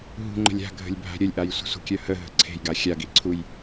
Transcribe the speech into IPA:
ɦṳŋ͡ǃə̤lʲ a̤ɡʱə̤lʲ bʱa̤ɾʲəlʲʔaj sʷe̤sʷə̤kʲœ həɦə̤ ǀʰe̤jɡa xʲaɡi ǀʰuj

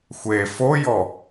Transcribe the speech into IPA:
xʷe fojɔ

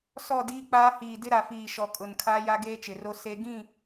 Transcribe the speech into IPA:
sɔ˦˨diː˦k͡paː˦ hiː˨ dɪ˦ ɾa˨fiː˨ʃɔ˨kʼʊ˨n kʰaː˦ja˦ ɡeː˦t͡ʃɪ˨ ro˦ se˦ ɡĩ˦˨

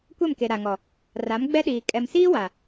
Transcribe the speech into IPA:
kʷɛ˦˨mke˨ ɾa˨ŋɔ˨ | ra˨˦m ɡ͡bɛ˦ɗiː˨ kʼɛ˨msiː˦ wa˨

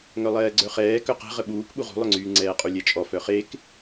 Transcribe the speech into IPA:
ŋœlˠɛːɡ͡ǀœχɛː kœqɛ̤ ʁəɓuːk ɓuʁṳlˠœŋ͡ǀyː ŋ͡ǀɛːqʼulʲɛt͡ʃʼɔ fœχek

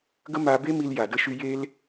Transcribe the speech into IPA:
ɡə˦ma˧be˦ mi˧lja˨də˧ʃy˧ je˦l

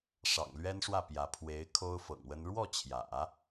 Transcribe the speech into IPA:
ʂɑ̰˨˩ŋlɥɛ˥nʂwä˥˩ pjä˧˥ pʰwe˧˥ɪ̯ kʰo˥ʊ̯fɤ̰˨˩ŋwə˥n ɻwɔ˥˩t͡ɕʰjä̰˨˩˦

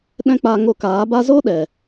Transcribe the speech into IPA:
ɗɛ̃˦k͡pa˧ ŋo˧kaː˨˦ba˦ zo˦ɗɛ˨

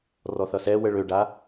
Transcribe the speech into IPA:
rɔθʌsɛ wəɭøɖa

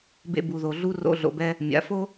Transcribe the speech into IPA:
bḛ˧bu˨ ðo˨ɮu˧ ro̰˧ ɮo̰˨bɛ˧ | mʲa̰˨˦fo˦

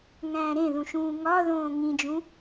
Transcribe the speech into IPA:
ŋæ̃ːɾẽðũʃũː ŋɒ ðõːŋĩd͡ʒũ

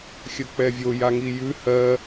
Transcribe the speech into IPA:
xʲək͡pɛvʲo jaŋijʉ hɜ

